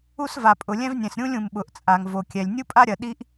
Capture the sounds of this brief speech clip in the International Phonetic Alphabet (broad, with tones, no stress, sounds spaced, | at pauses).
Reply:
u˥ s v a˩ pʼ ʊ˩ lʲ ɛ̃˥ v nʲ ɛ̃˩ s ɾʲ ũ˥ lʲ ũ˩ m ɓ ʊ˩ ʔ t͡sʼ a˩ ŋ v o˩ kʲ ɛ˩ lʲ nʲ u˥ pʼ a˥ ɾʲ ɐ˩ ɗ i˥ ʔ